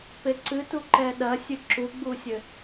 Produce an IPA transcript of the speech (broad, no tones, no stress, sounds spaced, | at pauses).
p e ǀ ɨ t u ǃ ɛ ɗ ɐ sʲ ɨ ǁ u ɡ͡b u sʲ ɘ